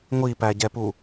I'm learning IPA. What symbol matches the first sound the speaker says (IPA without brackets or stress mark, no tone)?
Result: ŋʷ